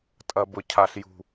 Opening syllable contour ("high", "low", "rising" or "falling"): low